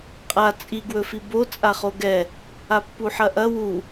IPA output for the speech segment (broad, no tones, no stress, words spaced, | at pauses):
qʼa t͡sʼiɡwɵfi bo t͡sʼaχoɡɛ | apːuħɐʔɐ wu